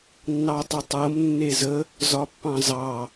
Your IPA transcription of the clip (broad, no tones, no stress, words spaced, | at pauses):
nːɑtˤətˤɤm nːezə | zɒpːɑ̃zɑ